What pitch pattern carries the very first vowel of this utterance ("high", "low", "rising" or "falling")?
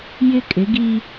high